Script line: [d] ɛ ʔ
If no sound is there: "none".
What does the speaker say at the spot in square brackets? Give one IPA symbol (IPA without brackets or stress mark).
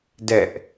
d